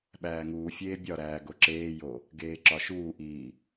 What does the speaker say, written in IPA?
ɓ æː ŋ uː fʲ eː bʲ ɒ ɾ æː ɡ o ǁ eː j o | ɡ eː ǁ ɒ ʃ uː ʔ iː

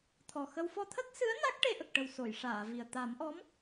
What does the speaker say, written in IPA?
t̪ʰ ɔ˨˩ x ə˧ w f ɔ˧ t̪ʰ ə˦˥ k̚ s ɨ˧˥ ə̯ n a˦˥ k̚ ʈ e˧ ʔ ə˨˩ k̚ ʈ ə˨˩ w s o˨˩˨ j ʂ aː˨˩˨ v i˨˩ ə̯ t̪ a˨˩˦ m ʔ ɔ˧˥ m

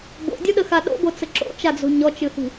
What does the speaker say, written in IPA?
b o̰ dʲ o ɗ ə x a ɗ o̰ b o t͡s ə ǁ o̰ t͡ʃ a d͡z o̤ ɲ ɔ t͡ʃ ɨ h i̤

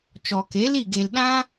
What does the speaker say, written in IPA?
t͡ʃ ɔ˨ k e˨˦ l i˦˨ ɡ e˨ l ɗ ã˦

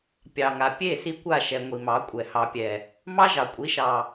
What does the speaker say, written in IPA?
pʲ ɑ˨ ŋ a˨ pʲ e˦˨ s i˦ kʷ a˦˨ ʃ ɛ˨ ŋʷ i˨ m ɑ˨˦ kʷʼ ɛ˨ h ɑ˨ pʲ ɛ˨ | m ɑ˦ ʒ ɑ˨ kʷʼ i˨˦ ʃ ɑ˨

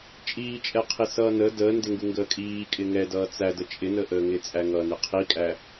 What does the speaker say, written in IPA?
t͡ʃʼ iː t͡ʃʼ ɛ qʰ i s ʌː n ə d əː n d ɪ ŋ ɡ u ŋ ɡ əː kʼ iː kʼ ɪ ŋ ɛ d ʌː t͡s æ d ə t͡ʃʼ ɪ n ə ʔ əː ŋ ɪ t͡sʼ æ ŋ ʌː n ɪ qʰ i kʼ æ

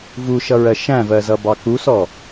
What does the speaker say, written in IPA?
v u ʃ ʌ ɹ ɜ ʃ æ̃ v ɜ z ʌ b ɑ k u s ɔ

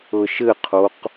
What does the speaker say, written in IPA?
ɤ ʃ ɘ qʰ o q

